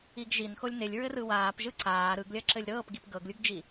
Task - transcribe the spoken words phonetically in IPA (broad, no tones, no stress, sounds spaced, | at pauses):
i ɡ ʒ i n x o lʲ n e lʲ ɹ ɘ r ɯ w aː p ʒ ɯ ǀ aː ɾ ɯ ɡ lʲ ɐ ǁ ɘ lʲ ɾ ɤː p ɡ i p ɡ ɤ ɡ lʲ u ɡ d͡ʒ i